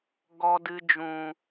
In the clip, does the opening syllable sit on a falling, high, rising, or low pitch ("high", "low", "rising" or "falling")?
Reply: low